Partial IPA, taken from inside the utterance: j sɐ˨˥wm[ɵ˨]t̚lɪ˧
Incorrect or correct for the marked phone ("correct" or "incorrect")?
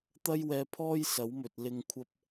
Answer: correct